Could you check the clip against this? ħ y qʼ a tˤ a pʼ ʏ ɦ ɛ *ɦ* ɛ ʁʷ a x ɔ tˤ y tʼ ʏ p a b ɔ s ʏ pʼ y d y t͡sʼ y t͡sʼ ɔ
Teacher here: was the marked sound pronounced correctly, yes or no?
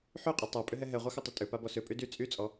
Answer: yes